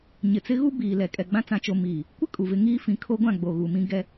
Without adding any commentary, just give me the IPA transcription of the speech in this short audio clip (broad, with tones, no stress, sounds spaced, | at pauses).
ɲ ɪ˨ t͡s ɪ˦ ɣ u˦ b iː˨ l ɛ˨ kʼ ɛ˨ ɡ͡b ã˦ t͡s ã˨ t͡ʃ o˨ m iː˨ | kʷ ɪ˦ kʼ u˨ v ɪ˦ ŋ iː˦ f ĩ˨ kʰ o˦ ɡʷ ã˦˨ ɡ͡b o˨ ɣ u˨ m ĩ˦ ɡ ɛ˦